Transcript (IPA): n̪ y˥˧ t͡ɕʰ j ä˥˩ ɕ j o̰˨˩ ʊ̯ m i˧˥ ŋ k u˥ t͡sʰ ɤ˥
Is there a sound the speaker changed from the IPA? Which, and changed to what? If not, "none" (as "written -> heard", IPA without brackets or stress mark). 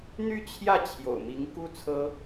ɕ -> t͡ɕʰ